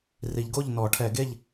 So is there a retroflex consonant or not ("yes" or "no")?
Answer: yes